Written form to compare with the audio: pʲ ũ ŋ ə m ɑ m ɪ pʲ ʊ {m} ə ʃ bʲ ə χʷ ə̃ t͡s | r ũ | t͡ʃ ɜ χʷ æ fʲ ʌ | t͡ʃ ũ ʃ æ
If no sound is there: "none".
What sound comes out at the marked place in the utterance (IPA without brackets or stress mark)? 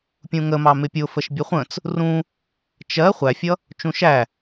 f